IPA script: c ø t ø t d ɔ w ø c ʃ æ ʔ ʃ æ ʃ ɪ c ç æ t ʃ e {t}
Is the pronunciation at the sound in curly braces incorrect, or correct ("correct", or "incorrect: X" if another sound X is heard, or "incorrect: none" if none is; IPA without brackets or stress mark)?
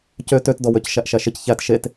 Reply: correct